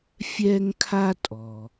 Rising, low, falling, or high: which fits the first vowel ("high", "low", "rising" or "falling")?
high